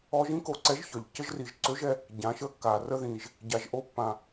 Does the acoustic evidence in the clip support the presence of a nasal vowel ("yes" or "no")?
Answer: yes